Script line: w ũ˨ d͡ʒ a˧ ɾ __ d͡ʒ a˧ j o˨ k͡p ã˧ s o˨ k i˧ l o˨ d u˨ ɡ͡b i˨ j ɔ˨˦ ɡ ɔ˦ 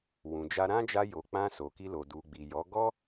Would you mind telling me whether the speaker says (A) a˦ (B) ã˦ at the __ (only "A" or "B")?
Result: B